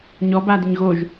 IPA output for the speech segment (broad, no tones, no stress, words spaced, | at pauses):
ɲɔbadɪɲ ɣoʒ